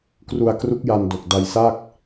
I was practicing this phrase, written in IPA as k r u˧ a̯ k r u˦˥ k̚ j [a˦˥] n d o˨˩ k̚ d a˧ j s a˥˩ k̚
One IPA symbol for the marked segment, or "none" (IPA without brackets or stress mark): a˧